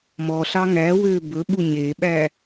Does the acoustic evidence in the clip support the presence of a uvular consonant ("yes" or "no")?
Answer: no